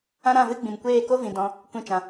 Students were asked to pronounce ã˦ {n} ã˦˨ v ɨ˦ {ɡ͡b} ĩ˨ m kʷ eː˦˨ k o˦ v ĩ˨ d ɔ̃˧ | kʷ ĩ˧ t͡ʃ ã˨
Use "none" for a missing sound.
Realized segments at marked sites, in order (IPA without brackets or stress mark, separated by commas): ɾ, ɡ͡b